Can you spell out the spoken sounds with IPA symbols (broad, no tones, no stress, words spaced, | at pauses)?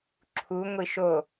ǁʰu ŋʷiʃo